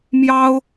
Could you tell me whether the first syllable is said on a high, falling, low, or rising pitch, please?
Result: high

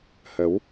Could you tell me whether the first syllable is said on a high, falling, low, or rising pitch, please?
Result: rising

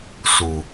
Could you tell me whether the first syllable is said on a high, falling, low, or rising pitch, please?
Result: low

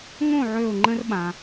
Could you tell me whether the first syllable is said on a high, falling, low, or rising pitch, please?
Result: falling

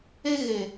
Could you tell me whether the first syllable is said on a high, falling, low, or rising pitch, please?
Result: high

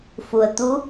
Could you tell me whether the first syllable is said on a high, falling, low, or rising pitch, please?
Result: low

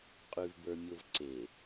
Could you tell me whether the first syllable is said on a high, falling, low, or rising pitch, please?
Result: low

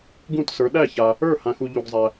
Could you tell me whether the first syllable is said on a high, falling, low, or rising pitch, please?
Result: falling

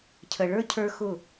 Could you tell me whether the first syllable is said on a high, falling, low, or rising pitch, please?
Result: low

